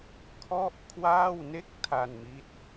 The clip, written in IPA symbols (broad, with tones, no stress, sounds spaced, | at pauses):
kʰ ɔ˥˩ ʔ kʰ w aː˥˩ w n e˥˩ k̚ tʰ a˧ n m i˦˥ t̚